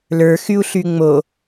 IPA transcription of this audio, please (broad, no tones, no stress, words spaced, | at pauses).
lə˞ xyu̯ɬyŋ͡mo